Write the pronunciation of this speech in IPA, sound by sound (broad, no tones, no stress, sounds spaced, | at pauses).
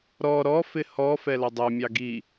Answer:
ɾ ɔ ɾ ɔ f ɪ h ɔ f ɛ l ɑ dˤ æ mʲ ɑ ɡ i